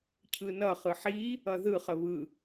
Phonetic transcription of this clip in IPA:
cʰɯnʌ χɯħi | ʌðɯ χəβɯ

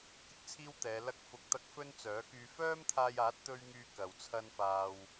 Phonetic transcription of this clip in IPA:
kɪ˥k̚t͡sʰiː˥wt̪ɛː˨˧ lɐ˥k̚fʊ˧k̚t̪ɐ˥k̚ fɵ˥nt͡sœː˨˥kyː˧ fœː˥mt̪ʰaː˧jaː˨˥t̚t̪ɵ˧ɥ ŋyː˥kɐ˨w t͡sʰɐ˥nfaː˧w

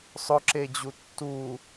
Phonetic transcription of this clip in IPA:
sˤʊǁed͡ʑu tːu

